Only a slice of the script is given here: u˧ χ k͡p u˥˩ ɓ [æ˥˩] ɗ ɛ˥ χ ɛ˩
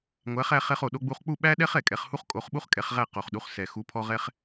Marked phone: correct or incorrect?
incorrect